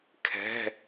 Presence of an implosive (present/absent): absent